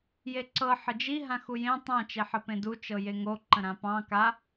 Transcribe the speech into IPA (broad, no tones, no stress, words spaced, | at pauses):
jeǀɤ ħəd͡ʒi ɦãxujẽ tˤã t͡ʃeħəpẽdu t͡ʃɤjeŋo ǃə̃ɾãpɑ̃ ka